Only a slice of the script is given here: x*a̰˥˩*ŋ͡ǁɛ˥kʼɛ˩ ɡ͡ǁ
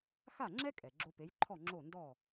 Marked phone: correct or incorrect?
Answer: incorrect: a˥˩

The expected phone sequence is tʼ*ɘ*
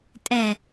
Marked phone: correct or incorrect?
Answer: incorrect: ɛ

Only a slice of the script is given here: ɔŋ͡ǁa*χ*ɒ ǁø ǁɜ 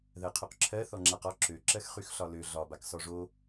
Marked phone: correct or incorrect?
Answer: incorrect: q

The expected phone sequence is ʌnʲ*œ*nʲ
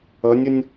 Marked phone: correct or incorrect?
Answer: incorrect: ə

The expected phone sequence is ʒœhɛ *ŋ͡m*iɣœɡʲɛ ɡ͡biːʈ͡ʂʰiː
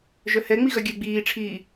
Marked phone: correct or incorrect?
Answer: correct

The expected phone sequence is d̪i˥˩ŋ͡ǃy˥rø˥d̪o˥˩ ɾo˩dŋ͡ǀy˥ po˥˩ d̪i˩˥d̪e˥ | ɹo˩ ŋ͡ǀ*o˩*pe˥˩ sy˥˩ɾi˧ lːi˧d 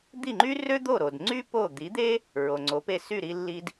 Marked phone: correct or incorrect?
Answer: incorrect: o˩˥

